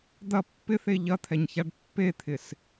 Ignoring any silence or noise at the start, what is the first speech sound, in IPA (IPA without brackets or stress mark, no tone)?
d̪